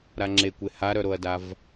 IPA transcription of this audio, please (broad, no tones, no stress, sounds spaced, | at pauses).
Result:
ɾ a ŋ͡ǁ e kʷ e h a ɾ œ ɾ o ɐ̯ d a v